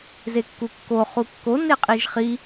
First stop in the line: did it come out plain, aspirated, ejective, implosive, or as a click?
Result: plain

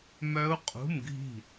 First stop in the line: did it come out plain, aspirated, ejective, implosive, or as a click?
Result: ejective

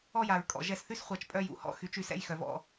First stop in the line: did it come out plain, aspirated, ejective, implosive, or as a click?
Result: ejective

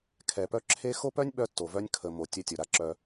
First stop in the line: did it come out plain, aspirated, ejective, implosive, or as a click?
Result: aspirated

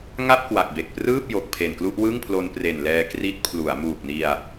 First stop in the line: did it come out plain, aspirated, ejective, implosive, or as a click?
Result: plain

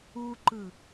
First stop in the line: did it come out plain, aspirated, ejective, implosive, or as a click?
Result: click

